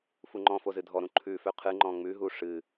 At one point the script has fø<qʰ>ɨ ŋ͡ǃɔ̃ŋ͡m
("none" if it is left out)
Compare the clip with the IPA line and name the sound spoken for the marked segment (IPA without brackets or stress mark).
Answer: qʰ